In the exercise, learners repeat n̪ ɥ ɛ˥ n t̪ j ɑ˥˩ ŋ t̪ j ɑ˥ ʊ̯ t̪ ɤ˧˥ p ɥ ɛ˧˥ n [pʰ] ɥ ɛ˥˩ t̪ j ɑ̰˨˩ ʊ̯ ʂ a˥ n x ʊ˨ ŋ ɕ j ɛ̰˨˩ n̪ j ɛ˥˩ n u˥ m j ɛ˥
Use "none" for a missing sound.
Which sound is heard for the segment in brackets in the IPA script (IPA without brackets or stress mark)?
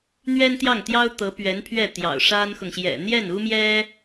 pʰ